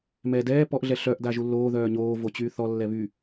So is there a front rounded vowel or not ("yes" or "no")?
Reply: yes